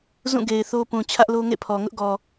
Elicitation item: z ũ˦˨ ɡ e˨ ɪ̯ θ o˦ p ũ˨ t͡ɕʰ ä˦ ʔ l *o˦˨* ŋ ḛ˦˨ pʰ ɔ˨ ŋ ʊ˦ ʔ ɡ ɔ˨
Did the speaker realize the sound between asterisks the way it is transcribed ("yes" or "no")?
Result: no